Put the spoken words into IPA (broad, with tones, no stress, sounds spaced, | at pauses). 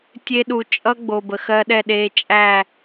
tʲ e˧ ɗ u˨ t͡ʃʼ ʌ˦ ɡ͡b o˨ b ə˨ x ɜ˧ ɗ ɛ˦˨ ɗ eː˧ t͡ʃʼ æ˦˨